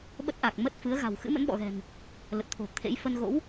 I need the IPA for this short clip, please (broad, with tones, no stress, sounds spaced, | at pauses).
ɓ ə˦˥ t̚ ʔ a˨˩ k̚ m ə˦˥ t̚ f ɨ˨˦ ə̯ ɣ a̤˨˩ w x ɨ̰˧˥ m ə̰˧˥ n ɓ ɔ̰˧˨ ɣ ɛ̤˨˩ n | l ə˨˩ t̚ t̪ʰ o̤˨˩ t̪ʰ ḛ˧˥ j f ə˧ n ɣ o̰˧˥ w